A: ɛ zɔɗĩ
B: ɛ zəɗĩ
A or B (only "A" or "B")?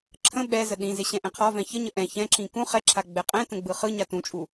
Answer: B